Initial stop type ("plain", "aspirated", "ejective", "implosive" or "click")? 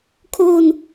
aspirated